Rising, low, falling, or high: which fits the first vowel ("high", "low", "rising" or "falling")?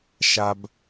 low